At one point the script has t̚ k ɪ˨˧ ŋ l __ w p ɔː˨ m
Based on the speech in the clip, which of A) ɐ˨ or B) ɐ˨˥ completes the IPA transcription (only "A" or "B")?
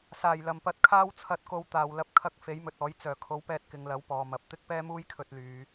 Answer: B